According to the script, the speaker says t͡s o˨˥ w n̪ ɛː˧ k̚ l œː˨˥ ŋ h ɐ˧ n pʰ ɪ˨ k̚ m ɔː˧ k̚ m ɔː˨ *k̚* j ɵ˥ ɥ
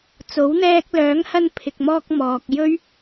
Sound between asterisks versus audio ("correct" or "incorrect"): correct